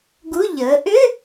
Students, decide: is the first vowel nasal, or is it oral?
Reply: oral